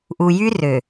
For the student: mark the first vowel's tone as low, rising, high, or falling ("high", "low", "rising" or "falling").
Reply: low